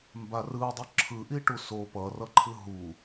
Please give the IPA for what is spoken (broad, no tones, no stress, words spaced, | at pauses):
mbarɯdˤʌ ǁʰɯʔiʈu so pʌrʌǃʰɯ ɦu